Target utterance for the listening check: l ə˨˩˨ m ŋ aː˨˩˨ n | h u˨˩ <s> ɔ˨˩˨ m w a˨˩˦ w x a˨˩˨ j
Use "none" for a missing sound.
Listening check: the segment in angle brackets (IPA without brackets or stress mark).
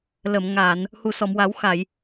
s